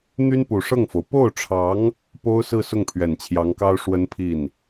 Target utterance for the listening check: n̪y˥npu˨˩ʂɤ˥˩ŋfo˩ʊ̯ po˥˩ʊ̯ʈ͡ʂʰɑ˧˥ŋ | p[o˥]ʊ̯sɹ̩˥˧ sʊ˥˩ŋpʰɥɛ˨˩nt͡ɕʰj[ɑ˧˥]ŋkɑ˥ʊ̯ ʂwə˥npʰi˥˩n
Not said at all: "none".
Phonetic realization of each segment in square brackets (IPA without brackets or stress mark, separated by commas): o˥, ɑ˧˥